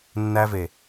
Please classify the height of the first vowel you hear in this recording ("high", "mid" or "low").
low